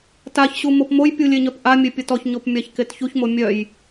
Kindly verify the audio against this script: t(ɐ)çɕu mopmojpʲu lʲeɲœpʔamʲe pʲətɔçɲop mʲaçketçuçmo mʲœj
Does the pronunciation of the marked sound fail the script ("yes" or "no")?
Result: yes